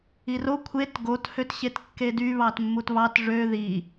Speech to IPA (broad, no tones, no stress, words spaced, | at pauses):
iro kʷʰet ɡot høtɕetkːedy βɑtmːutβɑt ʐø ði